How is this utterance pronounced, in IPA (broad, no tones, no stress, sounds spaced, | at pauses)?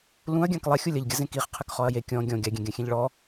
l ũ ɐ̯ ɡʲ ã k lˠ ɛ xʲ u lʲ ɐ ʎ ɡʲ ɐ z ẽ k i χ qʰ ɘ k χ ɔ ɐ̯ j e kʲ ɔ̃ ɡʲ ɔ̃ ɡʲ a ɡʲ ẽ ɡʲ ã xʲ ẽ ʎ ɭ ɔ